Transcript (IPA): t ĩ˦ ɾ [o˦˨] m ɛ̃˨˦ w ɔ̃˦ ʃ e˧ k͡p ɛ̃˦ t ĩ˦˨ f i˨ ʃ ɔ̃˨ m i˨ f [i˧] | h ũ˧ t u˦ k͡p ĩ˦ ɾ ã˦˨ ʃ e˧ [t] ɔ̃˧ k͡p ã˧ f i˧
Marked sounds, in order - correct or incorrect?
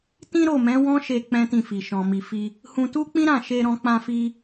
correct, correct, incorrect: ɾ

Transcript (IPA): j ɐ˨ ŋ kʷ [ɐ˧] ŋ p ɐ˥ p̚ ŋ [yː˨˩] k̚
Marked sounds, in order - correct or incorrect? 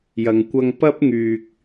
correct, incorrect: yː˧

